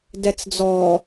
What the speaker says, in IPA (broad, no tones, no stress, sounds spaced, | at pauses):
d ɛ t͡s d͡z ɔ